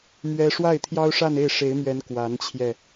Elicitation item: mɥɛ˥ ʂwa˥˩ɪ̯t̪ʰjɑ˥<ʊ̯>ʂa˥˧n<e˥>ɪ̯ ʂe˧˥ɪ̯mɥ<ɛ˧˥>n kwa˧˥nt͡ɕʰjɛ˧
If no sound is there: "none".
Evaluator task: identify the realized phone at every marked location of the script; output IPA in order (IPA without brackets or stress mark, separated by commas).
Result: ʊ̯, e˥˩, ɛ˧˥